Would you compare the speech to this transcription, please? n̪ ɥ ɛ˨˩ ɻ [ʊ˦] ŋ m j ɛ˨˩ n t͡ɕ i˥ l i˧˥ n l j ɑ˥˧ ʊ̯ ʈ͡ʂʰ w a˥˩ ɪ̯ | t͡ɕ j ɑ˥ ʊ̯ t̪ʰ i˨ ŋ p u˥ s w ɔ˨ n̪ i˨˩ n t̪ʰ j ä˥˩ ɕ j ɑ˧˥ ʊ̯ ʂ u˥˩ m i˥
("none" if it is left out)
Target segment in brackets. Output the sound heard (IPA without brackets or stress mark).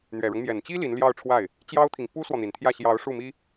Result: ʊ˦